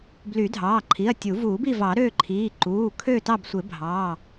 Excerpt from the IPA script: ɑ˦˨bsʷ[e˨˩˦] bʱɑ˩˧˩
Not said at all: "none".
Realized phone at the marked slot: e˨˩˦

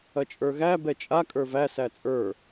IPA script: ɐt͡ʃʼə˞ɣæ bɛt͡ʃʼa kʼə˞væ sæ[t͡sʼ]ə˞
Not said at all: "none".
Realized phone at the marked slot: t͡sʼ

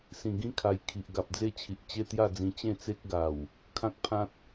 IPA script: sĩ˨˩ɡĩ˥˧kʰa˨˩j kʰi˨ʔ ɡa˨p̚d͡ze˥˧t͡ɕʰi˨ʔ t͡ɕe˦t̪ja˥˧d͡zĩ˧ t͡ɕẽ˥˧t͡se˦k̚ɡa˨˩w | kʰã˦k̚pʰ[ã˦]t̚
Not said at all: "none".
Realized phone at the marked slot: ã˦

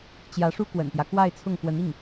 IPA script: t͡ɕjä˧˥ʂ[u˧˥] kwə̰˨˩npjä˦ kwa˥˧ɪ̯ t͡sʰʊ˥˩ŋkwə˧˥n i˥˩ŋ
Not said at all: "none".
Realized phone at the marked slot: u˥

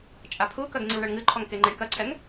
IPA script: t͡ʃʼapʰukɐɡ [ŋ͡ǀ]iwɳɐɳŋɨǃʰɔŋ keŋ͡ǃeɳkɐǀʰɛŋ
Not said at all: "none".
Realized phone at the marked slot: ŋ͡ǀ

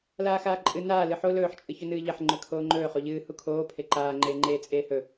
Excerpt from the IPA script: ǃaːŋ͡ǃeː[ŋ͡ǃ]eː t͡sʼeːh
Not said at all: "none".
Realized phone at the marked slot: ŋ͡ǃ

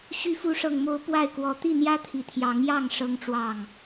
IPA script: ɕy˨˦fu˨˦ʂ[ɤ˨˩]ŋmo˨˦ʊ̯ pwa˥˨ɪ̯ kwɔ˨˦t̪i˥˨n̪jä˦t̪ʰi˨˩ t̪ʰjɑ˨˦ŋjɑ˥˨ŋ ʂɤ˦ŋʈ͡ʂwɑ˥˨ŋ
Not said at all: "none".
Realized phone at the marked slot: ɤ˨˩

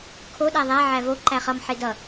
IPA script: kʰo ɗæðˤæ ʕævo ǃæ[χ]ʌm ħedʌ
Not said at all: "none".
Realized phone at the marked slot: χ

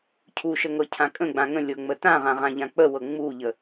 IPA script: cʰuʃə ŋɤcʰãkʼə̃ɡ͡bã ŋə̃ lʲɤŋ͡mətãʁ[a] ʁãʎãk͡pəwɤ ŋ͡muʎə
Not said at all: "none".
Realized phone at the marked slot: ã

